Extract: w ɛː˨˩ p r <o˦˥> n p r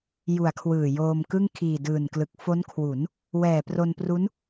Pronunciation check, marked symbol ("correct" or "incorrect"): incorrect